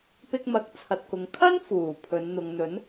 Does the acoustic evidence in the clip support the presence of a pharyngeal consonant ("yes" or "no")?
no